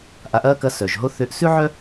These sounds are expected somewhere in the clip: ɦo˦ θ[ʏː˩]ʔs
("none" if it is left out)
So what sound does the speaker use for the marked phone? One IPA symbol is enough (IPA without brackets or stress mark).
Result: ʏː˨˦